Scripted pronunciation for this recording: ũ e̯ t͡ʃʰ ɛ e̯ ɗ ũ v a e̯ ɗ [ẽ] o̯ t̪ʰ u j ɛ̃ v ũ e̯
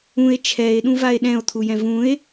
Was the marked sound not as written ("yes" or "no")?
yes